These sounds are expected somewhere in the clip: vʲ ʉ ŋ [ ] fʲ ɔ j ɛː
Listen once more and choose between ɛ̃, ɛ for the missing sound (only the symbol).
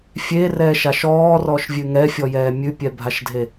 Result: ɛ